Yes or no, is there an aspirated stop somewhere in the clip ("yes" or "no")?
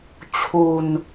yes